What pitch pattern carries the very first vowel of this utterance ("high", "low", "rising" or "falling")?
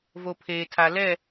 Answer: low